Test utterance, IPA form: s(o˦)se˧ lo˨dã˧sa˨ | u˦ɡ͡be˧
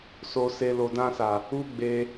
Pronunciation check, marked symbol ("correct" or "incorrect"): incorrect